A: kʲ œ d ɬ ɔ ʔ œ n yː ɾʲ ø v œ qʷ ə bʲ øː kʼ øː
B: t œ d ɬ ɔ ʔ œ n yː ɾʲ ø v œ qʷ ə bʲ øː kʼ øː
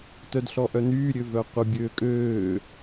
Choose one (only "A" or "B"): B